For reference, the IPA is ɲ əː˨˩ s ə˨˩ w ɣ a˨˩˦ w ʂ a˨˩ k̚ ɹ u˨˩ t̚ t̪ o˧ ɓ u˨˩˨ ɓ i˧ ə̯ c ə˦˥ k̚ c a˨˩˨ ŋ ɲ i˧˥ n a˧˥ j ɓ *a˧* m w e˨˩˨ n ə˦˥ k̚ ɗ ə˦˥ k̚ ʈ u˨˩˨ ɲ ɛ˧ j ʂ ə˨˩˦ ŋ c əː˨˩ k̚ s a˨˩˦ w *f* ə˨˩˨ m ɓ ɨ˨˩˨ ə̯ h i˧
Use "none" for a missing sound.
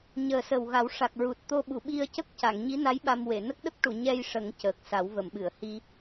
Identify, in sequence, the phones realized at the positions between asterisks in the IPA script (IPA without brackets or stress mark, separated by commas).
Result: a˧, v